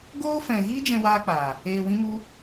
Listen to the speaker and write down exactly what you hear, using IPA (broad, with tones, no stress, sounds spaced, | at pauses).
ɡ oː˦ f ɛ̃˧ ɣ iː˦ d͡ʒ ɛ̃˧ w aː˧ k͡p aː˨ | eː˧ w ĩ˦ m u˦